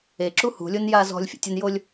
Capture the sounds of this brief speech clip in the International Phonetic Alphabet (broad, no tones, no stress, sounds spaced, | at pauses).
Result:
e ǁ u h ṳ lʲ o n j a z ɔ̤ lʲ fʲ ṵ tʲ ʊ n j o lʲ